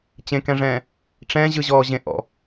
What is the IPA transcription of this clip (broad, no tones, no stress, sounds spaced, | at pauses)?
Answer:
t͡ɕ ẽ k ɛ̃ ʐ ɛ̃ː | ʈ͡ʂ ɛ̃ ʑ ɯ ʑ ɔː ʑ ẽ ʔ ɔ̰